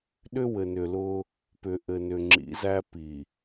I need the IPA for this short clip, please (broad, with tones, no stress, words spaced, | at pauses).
ɗʏ˦wɘ˨nʏ˨lʊː˦ | pʏ˨ʔɘ˨ nʏ˨ŋ͡ǁḭ˨˦zæ˦ pi˨